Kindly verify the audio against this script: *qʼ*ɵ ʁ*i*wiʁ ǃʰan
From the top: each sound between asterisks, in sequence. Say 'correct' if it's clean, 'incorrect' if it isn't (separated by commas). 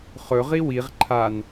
incorrect, correct